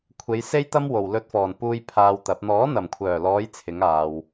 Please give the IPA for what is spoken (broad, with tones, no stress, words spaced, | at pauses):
kʷʰe˨˧jse˥jt̪ɐ˥m wo˨˩wlɵ˧t̚fɔː˨˩npuː˧j pʰaː˧wt̪ɐ˨˥p̚ n̪ɔː˨˥n̪ɐ˨˩mkʷʰœː˨˩lɔː˨˧j t͡sʰɪ˨˥ŋaː˨w